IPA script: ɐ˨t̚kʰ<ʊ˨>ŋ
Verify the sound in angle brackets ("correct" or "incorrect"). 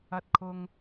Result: correct